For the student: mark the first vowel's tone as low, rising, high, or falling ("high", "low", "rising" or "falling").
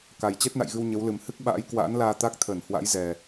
low